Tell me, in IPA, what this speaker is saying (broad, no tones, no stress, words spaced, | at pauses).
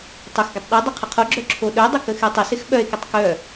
tˤʏxɡətˤ ɗedˤə qʰəqʰoɡ͡ǁœ ǁʰoɗœdˤɪ kəxytˤʏsɪx ɓœe̯kətˤ kœ